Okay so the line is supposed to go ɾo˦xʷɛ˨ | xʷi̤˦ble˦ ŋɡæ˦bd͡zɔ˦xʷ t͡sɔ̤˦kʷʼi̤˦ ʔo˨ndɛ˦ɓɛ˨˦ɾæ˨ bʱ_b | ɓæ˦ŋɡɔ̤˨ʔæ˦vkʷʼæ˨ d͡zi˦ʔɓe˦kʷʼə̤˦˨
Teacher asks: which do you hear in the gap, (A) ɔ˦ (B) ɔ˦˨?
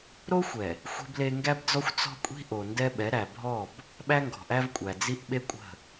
B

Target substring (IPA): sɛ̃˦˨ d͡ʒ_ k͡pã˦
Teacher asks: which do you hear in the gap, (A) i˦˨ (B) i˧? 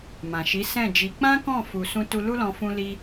B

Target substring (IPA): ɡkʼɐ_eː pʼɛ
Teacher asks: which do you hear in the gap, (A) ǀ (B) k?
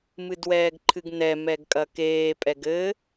B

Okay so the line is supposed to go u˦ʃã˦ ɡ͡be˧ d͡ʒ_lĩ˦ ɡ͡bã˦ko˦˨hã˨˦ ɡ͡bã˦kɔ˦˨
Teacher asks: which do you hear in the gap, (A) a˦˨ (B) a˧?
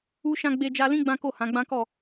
B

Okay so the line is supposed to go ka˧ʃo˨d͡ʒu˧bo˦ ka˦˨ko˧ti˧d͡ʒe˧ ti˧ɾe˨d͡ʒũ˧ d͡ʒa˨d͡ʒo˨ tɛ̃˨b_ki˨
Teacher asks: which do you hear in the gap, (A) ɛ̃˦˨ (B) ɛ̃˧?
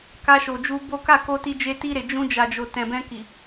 B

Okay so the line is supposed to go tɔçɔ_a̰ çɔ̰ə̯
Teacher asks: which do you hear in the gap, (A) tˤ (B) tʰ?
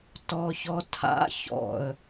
B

